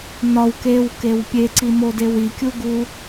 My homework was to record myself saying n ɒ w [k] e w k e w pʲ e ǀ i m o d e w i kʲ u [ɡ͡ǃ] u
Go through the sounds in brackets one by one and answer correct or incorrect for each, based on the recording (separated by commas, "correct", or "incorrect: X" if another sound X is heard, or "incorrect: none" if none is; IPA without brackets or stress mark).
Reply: correct, incorrect: ɡ